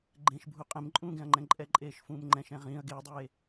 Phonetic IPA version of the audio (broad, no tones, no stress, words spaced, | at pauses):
ɡ͡ǃẽʃbʱu qʼẽmǃʼũːɡɛ̃ɐ̯ŋ͡ǃɛ̃ ǃʼɛǃʼeːʃfũːmŋ͡ǃɛ̃ʃ ɛ̃ʁĩːɐ̯ ɡeːdˤeː